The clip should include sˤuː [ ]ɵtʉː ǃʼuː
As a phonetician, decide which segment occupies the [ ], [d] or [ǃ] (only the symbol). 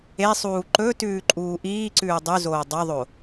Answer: ǃ